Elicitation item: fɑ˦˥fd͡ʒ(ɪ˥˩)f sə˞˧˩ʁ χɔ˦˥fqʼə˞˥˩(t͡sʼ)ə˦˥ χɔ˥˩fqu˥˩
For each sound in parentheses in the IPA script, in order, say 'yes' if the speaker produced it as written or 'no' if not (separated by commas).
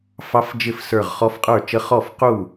yes, no